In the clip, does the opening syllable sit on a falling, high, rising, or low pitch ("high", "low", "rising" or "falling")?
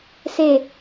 low